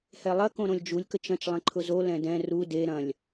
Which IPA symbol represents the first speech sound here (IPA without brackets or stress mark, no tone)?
h